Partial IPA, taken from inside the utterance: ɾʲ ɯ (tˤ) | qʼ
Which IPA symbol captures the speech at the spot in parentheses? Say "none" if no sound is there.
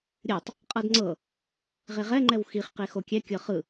tˤ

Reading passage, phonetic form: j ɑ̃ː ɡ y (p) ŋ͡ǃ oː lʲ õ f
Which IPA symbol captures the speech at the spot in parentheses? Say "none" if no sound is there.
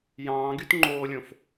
t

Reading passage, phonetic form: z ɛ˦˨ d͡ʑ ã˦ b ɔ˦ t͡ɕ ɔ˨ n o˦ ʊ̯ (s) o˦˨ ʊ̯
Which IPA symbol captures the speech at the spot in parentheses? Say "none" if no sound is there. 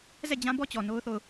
θ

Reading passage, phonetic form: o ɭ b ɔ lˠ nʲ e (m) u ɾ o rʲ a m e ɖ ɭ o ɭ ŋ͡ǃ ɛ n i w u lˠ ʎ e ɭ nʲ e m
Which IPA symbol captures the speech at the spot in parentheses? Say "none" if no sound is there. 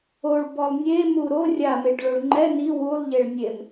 m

